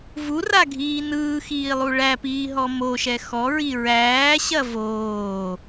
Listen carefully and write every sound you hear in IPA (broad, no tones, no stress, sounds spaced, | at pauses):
v u r a ɡʱ iː n ɯː x iː lˠ u ɭ æ p iː ɦ ɔ m o ʃ ɛ x ɔ ɹ i ɹ æː ɕ ɐ v oː